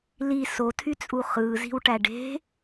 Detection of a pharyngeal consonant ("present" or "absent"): absent